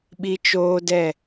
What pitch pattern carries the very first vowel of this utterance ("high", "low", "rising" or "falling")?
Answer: high